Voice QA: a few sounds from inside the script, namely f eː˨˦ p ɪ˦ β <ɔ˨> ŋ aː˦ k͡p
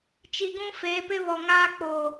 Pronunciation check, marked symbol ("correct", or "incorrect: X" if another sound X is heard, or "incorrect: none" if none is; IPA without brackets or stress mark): correct